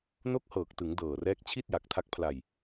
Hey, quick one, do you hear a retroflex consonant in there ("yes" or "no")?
no